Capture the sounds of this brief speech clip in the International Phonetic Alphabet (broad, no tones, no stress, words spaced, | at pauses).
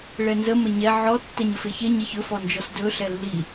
ɭɛnzə məɲɛ ʕɔ tːɛɲəfeçe ɲɛçɵ fɔnd͡ʒɔsdɵ ɬɛlːi